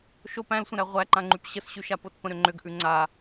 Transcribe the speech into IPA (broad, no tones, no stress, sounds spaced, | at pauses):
ʃ o p æ̃ l sʷ ə̃ ɾ æ ʁʷ æ ǃ ã ŋ͡ǃ ʉ p ɕ ə s ɕ ʉ ʃ a p o t p ə̃ ɾ ʏ ŋ͡ǃ ʏ ɡ ʔ ʉ ŋ͡ǀ a